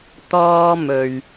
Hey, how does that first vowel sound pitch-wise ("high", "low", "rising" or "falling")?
high